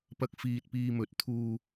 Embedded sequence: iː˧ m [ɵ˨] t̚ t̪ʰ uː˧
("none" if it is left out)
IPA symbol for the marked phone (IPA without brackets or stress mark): ɵ˨˥